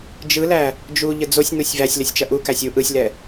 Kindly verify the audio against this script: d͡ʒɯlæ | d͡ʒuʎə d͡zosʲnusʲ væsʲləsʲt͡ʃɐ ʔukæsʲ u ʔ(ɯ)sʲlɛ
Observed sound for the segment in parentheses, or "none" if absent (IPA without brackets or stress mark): ɯ